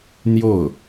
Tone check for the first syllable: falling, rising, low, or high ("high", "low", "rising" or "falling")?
falling